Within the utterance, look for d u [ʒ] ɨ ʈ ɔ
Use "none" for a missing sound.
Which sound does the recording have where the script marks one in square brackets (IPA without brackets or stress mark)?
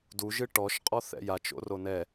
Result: ʒ